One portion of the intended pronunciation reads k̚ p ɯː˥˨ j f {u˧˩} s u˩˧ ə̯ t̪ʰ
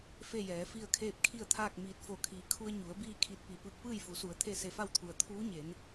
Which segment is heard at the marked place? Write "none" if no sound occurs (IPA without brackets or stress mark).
u˩˧